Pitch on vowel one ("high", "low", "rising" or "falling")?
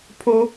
high